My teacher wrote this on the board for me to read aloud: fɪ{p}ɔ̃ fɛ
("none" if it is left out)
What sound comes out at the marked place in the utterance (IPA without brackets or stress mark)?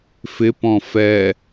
p